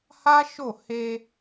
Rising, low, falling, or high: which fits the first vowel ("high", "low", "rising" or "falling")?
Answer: high